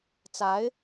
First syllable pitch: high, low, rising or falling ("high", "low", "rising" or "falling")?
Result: rising